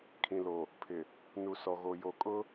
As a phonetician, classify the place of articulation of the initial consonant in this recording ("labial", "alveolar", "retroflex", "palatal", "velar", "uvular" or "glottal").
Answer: velar